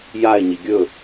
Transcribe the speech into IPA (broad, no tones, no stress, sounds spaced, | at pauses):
j a e̯ ɲ i ɡʲ ɵ